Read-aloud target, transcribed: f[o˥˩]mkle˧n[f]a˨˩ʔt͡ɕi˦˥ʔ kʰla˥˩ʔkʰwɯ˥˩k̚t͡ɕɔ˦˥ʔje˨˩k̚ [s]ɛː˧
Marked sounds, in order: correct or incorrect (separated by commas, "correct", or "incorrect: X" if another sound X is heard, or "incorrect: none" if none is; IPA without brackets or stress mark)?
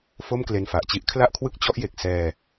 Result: correct, correct, correct